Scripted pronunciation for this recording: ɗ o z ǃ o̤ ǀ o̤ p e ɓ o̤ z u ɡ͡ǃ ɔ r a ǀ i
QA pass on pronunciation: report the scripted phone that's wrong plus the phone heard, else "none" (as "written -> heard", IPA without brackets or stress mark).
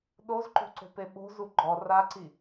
none